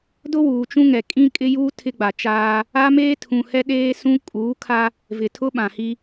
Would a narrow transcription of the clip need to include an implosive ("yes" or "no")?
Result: yes